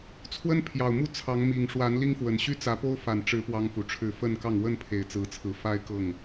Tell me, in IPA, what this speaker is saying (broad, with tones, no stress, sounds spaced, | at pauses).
t͡sʰ w ə˦ n pʰ j ɑ˨˩ ʊ̯ m u˥˨ t͡sʰ ɑ˨˦ ŋ m i˨˩ ŋ ʂ w a˨˦ n l i˦ ŋ f w ə˨˩ n ɕ y˦ t͡s ä˨˦ p o˦ ʊ̯ f a˨˩ n ʈ͡ʂ ɻ̩˨˦ p w ɑ˦ ŋ f u˨˦ ʈ͡ʂʰ ɻ̩˥˨ f ə˥˨ n k ɑ˥˨ ŋ w ə˥˨ n pʰ e˨˩ ɪ̯ t͡s ɹ̩˨˦ t͡sʰ ɹ̩˨˦ f a˦ ɪ̯ k ɤ˥˨ ŋ